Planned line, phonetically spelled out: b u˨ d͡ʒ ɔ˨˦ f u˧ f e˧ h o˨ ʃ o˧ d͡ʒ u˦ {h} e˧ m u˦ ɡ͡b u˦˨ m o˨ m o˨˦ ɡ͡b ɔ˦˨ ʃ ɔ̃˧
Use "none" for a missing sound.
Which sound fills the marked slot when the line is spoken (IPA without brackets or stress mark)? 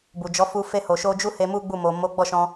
h